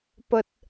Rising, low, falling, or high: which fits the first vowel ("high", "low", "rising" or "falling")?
high